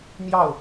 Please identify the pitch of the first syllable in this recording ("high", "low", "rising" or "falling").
falling